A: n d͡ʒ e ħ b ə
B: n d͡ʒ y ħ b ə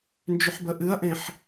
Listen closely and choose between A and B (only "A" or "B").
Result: B